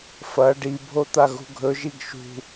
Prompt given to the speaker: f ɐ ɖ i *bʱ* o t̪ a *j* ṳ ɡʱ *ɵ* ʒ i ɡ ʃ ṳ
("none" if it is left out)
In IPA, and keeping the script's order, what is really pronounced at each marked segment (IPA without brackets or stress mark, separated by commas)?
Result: bʱ, ɣ, ɵ